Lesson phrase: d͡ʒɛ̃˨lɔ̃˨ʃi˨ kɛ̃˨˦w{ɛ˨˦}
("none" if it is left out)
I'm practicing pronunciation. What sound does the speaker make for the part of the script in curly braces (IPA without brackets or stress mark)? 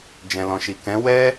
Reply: ɛ˦